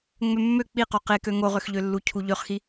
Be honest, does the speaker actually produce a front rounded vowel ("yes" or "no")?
yes